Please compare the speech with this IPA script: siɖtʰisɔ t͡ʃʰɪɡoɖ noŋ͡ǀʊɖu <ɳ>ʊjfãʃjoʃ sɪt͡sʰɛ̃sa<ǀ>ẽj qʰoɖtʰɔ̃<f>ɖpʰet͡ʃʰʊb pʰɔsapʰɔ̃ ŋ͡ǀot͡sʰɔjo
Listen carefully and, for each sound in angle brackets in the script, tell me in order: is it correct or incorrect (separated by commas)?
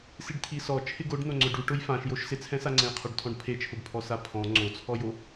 incorrect, incorrect, incorrect